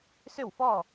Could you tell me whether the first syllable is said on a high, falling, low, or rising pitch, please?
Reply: falling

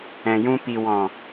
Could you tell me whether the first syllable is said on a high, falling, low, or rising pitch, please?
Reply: low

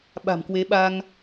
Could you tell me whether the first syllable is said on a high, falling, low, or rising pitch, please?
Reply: low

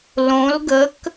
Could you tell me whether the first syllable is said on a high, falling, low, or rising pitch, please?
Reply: rising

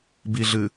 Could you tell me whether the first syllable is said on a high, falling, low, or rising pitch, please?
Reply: low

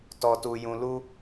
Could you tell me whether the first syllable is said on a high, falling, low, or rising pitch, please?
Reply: low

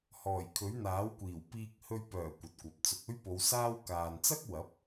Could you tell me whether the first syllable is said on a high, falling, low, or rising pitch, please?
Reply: low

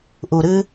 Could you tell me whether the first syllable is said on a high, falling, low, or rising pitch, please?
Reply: low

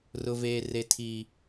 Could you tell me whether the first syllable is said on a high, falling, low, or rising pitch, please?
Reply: low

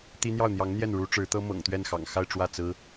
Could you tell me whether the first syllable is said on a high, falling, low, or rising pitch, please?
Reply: high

